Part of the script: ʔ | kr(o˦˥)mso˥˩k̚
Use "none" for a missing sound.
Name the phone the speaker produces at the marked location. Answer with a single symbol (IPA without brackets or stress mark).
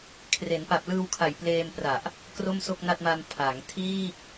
o˥˩